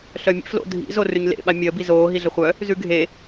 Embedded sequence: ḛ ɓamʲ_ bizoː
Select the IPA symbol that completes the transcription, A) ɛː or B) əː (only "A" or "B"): B